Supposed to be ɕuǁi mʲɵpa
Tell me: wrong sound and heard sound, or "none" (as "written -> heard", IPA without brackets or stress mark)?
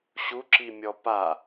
ɵ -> ɔ